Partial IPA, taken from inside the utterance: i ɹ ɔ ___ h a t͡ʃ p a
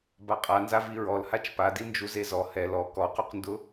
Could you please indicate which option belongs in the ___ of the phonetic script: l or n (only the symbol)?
l